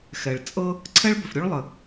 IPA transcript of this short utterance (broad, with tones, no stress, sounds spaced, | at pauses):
x ɛ˩ ɭ t͡sʼ ɤ˥ | ǀʰ ɛ˥ ɭ b ʏ˩ f ɾʲ u˥ ɭ lˠ ə˩